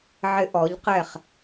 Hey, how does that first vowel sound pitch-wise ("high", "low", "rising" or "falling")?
high